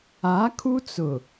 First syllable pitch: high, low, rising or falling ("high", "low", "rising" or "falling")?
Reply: rising